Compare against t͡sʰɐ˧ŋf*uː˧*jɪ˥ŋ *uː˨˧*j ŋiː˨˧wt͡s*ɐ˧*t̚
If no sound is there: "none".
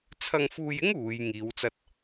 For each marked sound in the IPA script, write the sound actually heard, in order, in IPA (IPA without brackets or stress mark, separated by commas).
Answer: uː˧, uː˨˧, ɐ˧